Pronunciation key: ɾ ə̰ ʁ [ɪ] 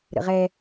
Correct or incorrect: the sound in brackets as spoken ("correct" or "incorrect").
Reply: incorrect